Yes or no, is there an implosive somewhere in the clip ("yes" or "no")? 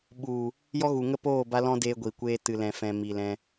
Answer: yes